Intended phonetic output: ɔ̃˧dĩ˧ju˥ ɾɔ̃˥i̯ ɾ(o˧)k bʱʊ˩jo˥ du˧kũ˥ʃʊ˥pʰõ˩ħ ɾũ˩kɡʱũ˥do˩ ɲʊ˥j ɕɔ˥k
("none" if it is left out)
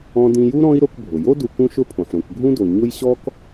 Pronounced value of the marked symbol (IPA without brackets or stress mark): o˧